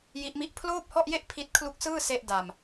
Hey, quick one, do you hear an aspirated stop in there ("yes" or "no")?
yes